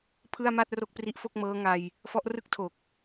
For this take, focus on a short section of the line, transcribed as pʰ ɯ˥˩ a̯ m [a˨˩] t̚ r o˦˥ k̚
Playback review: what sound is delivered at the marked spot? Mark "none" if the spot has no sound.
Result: a˥˩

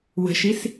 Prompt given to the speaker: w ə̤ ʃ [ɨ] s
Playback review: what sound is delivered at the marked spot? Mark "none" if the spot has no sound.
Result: i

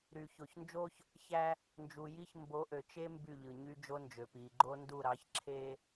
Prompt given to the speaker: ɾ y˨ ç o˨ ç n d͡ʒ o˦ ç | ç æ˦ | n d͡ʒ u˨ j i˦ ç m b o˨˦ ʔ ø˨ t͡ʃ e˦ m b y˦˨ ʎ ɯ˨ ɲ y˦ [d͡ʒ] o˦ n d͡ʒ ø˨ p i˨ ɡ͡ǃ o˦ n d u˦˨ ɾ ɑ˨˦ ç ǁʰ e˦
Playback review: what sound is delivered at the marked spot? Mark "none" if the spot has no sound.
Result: d͡ʒ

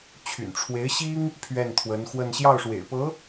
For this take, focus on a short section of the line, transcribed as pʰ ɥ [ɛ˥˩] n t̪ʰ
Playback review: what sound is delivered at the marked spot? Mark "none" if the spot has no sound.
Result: ɛ˥˩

